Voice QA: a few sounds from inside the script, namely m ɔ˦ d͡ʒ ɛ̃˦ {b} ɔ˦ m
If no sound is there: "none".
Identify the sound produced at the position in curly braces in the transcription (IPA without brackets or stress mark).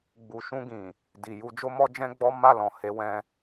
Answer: ɡ͡b